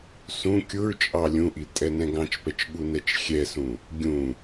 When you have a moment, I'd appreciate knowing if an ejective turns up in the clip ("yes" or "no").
yes